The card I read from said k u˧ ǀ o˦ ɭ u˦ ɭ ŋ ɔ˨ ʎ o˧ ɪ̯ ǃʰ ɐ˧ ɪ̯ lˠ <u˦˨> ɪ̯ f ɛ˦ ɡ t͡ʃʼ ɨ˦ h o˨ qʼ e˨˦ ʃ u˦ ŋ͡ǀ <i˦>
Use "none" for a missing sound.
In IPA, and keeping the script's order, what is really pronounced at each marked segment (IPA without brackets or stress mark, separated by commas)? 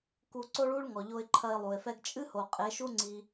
u˨, i˦